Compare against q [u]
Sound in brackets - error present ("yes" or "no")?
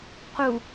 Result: no